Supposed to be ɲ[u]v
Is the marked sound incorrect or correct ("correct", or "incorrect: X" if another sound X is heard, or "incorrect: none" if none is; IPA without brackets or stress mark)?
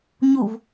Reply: correct